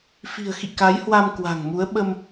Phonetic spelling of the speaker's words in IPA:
f i̤˨˩ ə̯ x ḭ˧˨ k a˨˦ j h w a˧ m k w a̤˨˩ ŋ m u˨˦ ə̯ ɓ ə˧ m

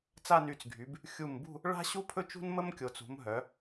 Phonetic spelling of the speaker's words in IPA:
t͡s a˥˧ n y˧˩ t͡s ɡʱ y˩˧ b | xʲ u˧˩ m b ṳ˥˧ | ɭ a̤˥ ɕ u˥ pʰ ɵ˥ t͡ʃ ṳ˥ n m ə˥ m kʲ o˩˧ t͡s ṳ˩˧ m ɦ œ˩˧

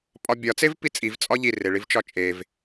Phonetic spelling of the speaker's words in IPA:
pʼ ɒ bʲ ɒ t͡s e v p i t͡sʼ i v t͡sʼ ɒ ʎ i r e ɭ i v t͡ʃ ɒ t͡ʃʼ e v

